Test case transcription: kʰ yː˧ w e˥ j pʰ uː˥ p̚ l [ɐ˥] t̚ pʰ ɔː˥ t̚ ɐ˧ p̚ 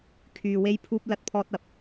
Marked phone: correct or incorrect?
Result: correct